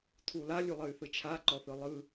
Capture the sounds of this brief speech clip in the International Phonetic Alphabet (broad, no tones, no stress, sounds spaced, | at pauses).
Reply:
tʰ u l a lʲ u lˠ ə y̯ θ ɯ t͡ʃʰ a ǃ ɔ θ ɯ lˠ ɯ